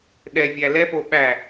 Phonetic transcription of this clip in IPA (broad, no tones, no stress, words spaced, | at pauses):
ɗɛvʲæ lɛfo ɓæ